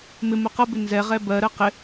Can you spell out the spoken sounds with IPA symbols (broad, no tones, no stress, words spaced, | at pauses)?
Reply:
mɪmʊ qʌbɪ nzɛʁɛ bɜɾɜ qɪ